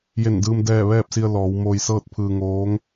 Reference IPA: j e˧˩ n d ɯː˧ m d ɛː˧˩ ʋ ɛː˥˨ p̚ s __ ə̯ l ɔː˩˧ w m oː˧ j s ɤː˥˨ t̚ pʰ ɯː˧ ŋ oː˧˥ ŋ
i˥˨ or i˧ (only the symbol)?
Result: i˧